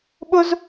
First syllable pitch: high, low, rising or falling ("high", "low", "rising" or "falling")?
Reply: high